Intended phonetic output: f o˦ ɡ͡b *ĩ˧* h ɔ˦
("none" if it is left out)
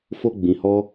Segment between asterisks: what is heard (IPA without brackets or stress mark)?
ĩ˧